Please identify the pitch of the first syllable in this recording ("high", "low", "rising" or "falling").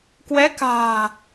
rising